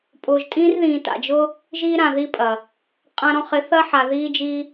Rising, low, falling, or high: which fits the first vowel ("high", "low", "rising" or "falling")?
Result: low